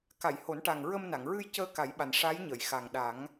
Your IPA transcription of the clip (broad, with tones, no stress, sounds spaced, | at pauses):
k a˨˩˨ j h o˨˩˦ n ʈ a˨˩ ŋ ɹ ə˧ m n a˨˩˨ ŋ ɹ ɨ˧ j c əː˧ k a˨˩˦ j ɓ a˨˩ n ʂ a˧˥ j ɲ ə˨˩˨ j x a˨˩ ŋ ɗ a˨˩˦ ŋ